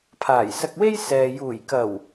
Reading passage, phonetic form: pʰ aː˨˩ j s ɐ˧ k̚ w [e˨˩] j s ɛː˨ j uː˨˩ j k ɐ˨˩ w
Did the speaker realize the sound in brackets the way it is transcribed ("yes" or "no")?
no